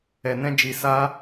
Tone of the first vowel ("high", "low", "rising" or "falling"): low